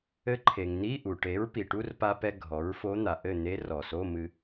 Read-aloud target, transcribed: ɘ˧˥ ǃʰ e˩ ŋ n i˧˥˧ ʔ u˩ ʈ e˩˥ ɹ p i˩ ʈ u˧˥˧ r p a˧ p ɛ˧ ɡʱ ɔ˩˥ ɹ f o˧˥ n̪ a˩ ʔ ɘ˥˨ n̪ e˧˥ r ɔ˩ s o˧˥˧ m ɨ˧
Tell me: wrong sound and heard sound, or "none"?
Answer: none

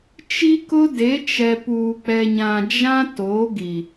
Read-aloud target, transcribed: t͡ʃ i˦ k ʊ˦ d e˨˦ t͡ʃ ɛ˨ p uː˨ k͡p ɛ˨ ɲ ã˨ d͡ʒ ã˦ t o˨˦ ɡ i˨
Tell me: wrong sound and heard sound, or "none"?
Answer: none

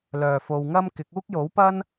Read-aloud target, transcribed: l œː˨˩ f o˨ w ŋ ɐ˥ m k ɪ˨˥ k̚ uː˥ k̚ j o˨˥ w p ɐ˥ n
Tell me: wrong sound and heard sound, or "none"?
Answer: none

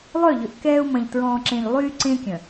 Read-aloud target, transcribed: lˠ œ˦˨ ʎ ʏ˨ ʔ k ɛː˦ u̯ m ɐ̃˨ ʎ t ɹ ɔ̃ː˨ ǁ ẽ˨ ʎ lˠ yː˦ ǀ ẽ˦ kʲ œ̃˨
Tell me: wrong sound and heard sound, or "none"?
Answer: none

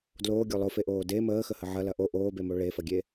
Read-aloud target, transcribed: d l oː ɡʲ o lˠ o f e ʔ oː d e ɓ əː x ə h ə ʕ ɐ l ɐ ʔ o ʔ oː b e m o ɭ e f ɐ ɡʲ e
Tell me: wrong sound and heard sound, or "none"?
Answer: ɓ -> m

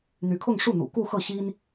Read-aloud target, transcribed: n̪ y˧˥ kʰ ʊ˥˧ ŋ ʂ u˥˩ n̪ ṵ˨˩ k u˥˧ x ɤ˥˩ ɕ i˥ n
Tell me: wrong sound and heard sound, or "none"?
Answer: none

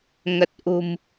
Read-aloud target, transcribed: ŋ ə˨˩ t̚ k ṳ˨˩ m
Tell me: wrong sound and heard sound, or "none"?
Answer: k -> ʔ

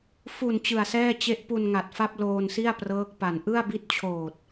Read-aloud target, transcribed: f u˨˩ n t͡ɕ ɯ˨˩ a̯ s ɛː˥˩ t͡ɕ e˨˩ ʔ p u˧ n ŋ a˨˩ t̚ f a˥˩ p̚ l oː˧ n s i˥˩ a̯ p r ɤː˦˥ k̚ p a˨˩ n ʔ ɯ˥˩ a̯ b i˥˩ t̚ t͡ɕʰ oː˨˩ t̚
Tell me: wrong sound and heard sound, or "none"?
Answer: e˨˩ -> e˦˥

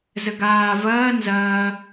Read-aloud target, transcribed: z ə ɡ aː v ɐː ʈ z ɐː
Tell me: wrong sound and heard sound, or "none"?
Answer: ʈ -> n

